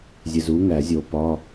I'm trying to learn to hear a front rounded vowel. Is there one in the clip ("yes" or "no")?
no